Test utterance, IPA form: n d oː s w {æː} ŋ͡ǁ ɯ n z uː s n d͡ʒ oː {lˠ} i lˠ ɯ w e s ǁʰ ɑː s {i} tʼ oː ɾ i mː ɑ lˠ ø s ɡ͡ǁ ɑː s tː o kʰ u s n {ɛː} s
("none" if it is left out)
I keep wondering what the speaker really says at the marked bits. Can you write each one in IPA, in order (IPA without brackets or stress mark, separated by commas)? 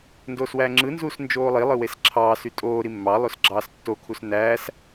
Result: æː, lˠ, y, æː